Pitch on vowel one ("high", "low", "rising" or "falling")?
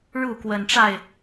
falling